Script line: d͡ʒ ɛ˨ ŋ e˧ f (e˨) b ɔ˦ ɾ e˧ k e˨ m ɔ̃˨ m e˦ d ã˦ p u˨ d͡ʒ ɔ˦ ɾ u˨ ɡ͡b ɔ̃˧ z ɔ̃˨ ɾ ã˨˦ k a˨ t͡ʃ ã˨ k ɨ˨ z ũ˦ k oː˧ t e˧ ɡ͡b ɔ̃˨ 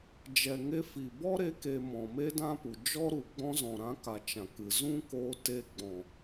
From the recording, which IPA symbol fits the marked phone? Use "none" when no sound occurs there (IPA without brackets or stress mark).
i˨